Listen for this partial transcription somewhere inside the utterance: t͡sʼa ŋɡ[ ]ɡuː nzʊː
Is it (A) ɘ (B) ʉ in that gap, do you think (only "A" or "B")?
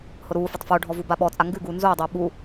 B